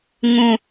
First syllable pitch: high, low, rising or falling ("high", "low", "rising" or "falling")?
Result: low